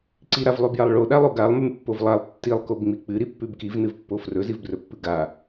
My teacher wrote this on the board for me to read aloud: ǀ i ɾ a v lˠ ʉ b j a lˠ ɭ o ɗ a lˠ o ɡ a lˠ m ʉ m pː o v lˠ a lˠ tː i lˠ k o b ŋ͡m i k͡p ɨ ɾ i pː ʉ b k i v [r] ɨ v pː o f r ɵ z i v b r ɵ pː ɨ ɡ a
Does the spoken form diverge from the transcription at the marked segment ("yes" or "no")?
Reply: yes